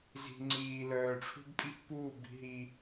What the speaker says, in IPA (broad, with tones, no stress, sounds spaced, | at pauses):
z i̤˨ ŋ͡ǀ iː˨ l œː˨ ʈ͡ʂʰ ṳ˦ b pʼ i˦ pː uː˦˨ b i̤˦ ɦ i˦